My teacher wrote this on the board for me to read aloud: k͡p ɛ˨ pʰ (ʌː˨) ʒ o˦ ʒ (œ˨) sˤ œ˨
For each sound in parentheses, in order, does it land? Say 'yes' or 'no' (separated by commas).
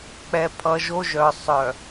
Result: no, yes